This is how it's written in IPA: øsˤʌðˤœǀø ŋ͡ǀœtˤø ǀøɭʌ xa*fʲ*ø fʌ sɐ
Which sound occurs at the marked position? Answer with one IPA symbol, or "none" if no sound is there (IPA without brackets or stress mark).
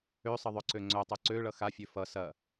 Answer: fʲ